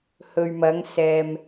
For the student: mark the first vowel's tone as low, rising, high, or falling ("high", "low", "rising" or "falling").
low